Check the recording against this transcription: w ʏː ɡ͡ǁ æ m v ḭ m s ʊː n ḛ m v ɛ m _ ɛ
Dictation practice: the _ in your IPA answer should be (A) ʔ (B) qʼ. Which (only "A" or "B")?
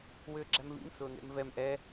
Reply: A